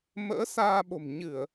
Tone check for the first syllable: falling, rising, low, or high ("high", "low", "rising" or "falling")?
rising